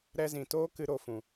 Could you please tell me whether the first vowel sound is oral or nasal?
oral